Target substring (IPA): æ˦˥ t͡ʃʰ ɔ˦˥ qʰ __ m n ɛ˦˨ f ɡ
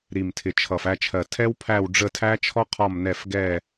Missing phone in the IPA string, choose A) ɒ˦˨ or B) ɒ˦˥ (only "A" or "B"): A